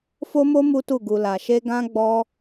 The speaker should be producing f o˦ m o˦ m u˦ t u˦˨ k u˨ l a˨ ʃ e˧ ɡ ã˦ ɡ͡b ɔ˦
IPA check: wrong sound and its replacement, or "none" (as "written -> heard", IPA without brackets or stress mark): k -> ɡ